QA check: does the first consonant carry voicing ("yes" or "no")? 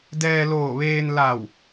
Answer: yes